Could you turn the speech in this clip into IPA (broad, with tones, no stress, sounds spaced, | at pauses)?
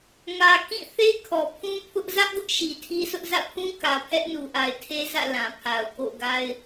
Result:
ŋ ä˨ k ĩ˦˨ θ e˦ kʰ ɔ˨ pʰ ũ˦ pʰ ʊ˦ ʔ z ä˦ ʔ ɡ ʊ˦ ʔ ʃ i˨ tʰ i˦ sʰ ʊ˦ ʔ z ä̰˦˨ pʰ ũ˦ k ä˨ pʰ ɛ˦ ʔ n u˨ ʔ a˨ ɪ̯ tʰ e˦ z ä̰˦˨ l ã˨ pʰ a˨ ʊ̯ k o̰˦˨ ʊ̯ ɡ a˦ ɪ̯